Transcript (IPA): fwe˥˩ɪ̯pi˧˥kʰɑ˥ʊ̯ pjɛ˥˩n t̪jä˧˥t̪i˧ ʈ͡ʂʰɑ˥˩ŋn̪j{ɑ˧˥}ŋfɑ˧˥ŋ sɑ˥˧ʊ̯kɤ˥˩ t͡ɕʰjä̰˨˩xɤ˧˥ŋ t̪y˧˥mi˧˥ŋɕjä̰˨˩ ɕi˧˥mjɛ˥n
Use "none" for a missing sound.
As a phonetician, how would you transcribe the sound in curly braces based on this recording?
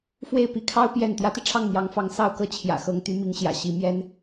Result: ɑ˧˥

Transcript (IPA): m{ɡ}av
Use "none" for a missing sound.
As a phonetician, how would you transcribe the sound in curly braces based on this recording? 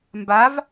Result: b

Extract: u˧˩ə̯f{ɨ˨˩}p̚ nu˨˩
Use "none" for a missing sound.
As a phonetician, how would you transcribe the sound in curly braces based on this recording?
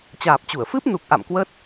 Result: ɨ˦˥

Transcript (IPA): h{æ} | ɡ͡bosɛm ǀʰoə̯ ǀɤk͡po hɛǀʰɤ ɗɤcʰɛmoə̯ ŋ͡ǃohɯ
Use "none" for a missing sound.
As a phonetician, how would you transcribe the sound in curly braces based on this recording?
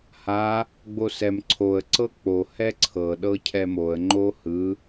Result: a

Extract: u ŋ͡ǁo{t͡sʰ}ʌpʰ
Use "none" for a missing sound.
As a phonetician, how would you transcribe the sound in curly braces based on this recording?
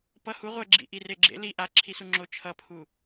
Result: t͡ʃʰ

